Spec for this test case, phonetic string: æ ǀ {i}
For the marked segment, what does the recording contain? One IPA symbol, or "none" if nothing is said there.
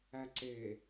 e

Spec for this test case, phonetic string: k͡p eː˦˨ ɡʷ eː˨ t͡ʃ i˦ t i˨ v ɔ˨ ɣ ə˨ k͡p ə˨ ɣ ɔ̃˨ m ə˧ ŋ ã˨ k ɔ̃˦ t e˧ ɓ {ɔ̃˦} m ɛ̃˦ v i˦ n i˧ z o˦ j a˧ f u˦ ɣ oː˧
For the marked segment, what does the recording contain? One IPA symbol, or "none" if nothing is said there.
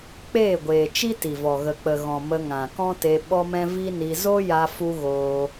ɔ˦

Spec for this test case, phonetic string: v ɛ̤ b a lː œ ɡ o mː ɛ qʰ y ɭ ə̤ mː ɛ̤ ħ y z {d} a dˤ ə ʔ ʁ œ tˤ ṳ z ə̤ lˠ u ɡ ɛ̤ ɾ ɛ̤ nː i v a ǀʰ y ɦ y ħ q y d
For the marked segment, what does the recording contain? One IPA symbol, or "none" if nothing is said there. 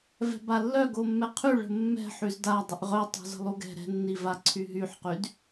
d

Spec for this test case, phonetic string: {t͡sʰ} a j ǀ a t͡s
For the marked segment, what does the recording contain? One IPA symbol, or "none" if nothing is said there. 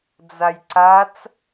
d͡z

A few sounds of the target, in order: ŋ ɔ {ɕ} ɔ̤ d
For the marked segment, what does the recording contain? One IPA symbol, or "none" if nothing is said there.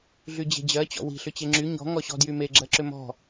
ɕ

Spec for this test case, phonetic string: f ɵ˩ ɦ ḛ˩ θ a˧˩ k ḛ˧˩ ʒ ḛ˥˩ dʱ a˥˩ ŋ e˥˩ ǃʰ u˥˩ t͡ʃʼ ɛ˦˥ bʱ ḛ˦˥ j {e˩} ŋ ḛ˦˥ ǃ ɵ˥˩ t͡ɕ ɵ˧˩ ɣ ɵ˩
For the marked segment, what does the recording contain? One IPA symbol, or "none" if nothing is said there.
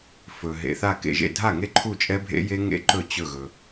e˦˥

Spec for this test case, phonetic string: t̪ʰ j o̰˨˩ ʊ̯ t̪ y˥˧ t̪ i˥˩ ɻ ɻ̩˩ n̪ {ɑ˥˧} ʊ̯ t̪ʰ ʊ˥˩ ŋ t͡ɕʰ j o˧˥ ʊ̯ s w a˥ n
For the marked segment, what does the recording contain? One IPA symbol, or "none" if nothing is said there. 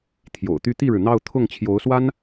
ɑ˥˧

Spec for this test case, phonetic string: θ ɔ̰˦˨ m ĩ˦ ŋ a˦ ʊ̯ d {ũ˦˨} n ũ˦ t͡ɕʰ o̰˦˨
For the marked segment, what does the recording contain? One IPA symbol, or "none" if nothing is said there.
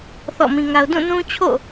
ũ˦˨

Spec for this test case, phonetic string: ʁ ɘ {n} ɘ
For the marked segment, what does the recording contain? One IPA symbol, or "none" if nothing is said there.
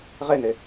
n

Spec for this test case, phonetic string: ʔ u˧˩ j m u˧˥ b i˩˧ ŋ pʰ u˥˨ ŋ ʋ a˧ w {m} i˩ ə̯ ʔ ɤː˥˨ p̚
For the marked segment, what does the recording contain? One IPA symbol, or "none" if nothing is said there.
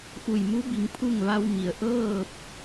m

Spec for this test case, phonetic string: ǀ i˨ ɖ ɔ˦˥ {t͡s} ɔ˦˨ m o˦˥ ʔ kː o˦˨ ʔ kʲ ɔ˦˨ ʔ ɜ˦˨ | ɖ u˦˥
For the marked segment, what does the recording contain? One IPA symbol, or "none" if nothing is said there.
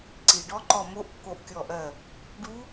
ǃ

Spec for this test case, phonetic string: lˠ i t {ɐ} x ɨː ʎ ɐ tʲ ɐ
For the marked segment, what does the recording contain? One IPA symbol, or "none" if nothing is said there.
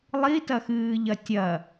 ɐ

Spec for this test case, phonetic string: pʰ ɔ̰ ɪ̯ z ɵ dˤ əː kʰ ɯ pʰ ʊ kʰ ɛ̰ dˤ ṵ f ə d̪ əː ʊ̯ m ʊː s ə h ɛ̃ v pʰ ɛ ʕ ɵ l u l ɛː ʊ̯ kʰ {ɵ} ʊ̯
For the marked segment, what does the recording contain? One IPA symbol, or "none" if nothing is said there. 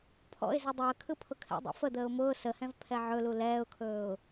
ɵː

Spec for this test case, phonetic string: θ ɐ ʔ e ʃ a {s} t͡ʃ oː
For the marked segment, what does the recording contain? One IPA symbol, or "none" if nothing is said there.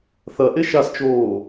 s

